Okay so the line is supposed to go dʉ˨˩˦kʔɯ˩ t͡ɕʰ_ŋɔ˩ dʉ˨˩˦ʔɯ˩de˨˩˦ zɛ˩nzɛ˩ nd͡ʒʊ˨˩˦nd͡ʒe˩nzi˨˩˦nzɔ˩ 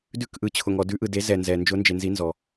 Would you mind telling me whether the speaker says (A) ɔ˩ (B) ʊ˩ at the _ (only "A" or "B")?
B